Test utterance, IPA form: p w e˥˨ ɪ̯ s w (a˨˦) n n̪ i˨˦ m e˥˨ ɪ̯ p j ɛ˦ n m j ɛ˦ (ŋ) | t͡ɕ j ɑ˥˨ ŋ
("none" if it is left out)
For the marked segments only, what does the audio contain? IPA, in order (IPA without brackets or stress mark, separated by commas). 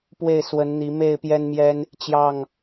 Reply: ə˨˦, n